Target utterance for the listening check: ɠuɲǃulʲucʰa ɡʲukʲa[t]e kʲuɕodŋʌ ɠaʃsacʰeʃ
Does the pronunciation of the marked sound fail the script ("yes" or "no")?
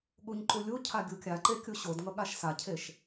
yes